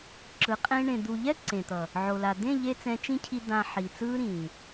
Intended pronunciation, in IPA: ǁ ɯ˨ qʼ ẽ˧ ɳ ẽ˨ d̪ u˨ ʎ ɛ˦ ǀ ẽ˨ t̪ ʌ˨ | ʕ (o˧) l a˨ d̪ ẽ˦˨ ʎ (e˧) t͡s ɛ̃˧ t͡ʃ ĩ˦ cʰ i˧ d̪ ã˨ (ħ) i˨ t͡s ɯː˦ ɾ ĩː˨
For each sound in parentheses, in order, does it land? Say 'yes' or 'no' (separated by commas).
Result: no, yes, yes